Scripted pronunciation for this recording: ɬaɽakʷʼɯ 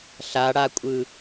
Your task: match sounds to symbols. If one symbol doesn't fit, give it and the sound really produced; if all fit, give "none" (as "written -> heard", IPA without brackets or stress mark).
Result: none